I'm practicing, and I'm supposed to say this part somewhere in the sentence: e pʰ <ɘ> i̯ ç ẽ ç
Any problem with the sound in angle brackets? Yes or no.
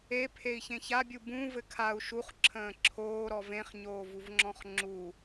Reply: yes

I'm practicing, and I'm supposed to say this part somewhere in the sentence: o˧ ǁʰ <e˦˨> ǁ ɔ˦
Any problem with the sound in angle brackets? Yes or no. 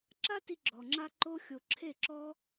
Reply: no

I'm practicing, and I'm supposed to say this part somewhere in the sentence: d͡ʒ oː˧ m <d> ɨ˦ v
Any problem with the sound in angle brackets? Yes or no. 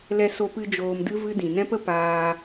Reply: no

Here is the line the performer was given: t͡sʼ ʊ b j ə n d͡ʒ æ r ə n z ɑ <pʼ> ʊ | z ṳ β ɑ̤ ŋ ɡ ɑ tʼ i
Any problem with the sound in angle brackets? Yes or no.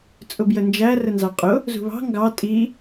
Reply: yes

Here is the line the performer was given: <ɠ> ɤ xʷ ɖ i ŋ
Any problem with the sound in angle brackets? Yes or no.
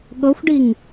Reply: no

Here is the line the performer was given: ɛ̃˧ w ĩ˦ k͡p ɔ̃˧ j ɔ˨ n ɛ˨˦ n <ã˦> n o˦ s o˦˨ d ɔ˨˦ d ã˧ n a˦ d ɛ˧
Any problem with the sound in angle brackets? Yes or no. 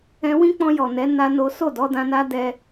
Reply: yes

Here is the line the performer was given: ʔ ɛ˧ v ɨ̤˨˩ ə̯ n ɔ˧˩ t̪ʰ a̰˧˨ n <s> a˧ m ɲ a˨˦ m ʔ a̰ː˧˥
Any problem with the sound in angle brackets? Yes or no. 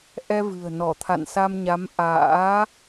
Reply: no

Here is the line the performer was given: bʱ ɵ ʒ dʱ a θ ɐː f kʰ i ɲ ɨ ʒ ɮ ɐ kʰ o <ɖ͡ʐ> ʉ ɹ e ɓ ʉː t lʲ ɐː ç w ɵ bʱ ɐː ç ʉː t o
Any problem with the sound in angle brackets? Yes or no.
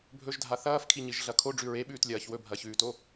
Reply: no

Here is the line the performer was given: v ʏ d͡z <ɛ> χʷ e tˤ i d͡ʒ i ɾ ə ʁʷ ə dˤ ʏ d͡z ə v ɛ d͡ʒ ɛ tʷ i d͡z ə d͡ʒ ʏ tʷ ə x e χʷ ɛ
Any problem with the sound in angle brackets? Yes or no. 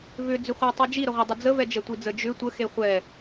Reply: yes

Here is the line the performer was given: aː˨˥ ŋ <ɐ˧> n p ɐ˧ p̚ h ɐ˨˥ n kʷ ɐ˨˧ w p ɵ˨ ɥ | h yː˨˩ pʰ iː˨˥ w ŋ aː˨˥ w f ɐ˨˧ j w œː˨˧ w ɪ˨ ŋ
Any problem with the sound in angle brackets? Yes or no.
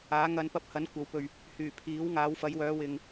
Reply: no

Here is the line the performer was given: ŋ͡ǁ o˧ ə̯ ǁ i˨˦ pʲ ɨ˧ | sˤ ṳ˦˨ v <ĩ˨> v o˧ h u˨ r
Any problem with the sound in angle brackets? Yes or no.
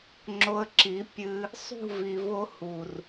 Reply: yes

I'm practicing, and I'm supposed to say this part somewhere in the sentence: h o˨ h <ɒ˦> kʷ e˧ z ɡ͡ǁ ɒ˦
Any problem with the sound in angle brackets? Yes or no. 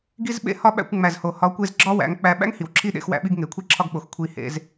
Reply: yes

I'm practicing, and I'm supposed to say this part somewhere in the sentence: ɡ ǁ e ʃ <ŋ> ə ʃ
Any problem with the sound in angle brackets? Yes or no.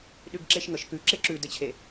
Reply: no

